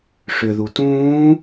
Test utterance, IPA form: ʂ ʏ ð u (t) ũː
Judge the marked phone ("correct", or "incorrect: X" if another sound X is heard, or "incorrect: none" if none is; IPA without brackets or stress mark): correct